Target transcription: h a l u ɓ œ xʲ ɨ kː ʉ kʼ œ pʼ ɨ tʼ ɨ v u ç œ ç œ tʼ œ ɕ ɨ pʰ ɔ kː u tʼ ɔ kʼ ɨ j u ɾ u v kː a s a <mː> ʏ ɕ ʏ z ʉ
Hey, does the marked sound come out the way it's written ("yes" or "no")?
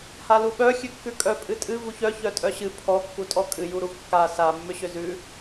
yes